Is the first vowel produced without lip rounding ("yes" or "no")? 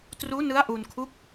no